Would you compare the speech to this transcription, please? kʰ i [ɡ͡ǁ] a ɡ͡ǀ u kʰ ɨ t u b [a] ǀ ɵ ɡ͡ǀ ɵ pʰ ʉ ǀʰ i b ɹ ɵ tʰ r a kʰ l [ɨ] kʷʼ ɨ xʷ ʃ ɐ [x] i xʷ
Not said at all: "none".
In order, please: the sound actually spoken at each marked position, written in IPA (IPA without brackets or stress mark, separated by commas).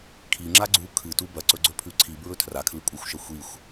ŋ͡ǁ, ɐ, ɨ, xʷ